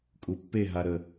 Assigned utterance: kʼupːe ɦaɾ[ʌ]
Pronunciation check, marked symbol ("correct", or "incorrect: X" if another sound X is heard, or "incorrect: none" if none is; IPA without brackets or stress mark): incorrect: ə